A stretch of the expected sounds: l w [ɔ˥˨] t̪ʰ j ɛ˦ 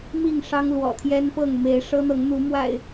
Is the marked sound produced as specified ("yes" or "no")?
no